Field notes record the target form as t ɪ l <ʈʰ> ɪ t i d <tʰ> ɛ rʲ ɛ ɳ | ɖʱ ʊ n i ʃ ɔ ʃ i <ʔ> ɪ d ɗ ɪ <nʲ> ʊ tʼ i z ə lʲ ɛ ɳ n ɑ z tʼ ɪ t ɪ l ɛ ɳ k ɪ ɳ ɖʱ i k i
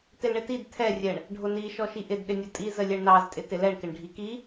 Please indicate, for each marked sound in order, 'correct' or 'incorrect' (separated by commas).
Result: incorrect, correct, correct, correct